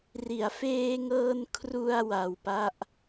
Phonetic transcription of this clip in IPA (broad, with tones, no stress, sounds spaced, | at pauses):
r i˩˦ a̯ f eː˧ ŋ ɤː˧ n kʰ r u˧ a̯ w a˧ w p a˥˩ ʔ